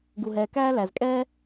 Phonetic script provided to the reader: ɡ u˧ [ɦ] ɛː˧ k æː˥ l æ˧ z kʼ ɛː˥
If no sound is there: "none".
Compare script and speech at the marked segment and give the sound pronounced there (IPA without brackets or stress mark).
ɦ